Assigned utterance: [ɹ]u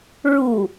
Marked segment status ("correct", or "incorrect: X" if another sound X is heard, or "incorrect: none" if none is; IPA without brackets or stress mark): correct